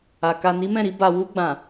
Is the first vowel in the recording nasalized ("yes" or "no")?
no